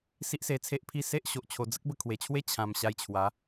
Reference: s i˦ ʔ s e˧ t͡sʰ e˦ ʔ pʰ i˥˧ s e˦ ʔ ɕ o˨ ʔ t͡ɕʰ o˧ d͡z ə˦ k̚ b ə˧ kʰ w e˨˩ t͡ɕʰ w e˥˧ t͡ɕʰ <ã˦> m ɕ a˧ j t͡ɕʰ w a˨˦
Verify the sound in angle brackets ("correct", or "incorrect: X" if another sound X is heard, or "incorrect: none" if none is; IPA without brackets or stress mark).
incorrect: ã˧